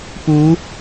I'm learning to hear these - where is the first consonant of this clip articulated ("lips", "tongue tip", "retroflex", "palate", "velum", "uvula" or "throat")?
lips